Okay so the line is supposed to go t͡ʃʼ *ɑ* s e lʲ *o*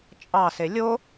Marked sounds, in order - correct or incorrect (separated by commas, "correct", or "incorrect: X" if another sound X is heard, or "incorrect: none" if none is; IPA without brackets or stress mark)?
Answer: correct, correct